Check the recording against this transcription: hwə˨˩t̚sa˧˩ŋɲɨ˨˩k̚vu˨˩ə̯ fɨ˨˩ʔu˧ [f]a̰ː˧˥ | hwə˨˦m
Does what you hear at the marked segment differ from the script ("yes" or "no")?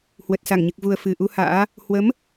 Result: yes